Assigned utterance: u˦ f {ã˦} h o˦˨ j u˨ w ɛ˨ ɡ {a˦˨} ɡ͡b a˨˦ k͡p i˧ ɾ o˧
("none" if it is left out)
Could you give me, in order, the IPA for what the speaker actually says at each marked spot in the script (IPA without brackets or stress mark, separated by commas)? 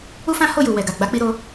ã˦, a˨